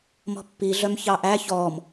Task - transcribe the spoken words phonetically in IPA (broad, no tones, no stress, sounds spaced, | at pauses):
m ɔ̤ pː i ɮ œ m ç ɑ ʔ æ ç ɔ m